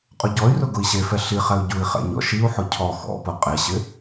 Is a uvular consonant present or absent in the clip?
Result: present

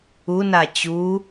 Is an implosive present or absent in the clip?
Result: absent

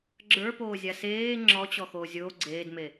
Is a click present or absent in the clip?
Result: present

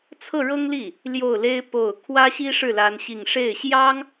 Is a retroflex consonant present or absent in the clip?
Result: present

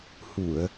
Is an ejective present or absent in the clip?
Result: absent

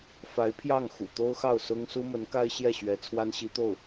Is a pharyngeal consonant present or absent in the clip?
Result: absent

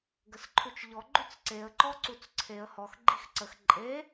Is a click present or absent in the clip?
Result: present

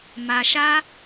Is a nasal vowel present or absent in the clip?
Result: absent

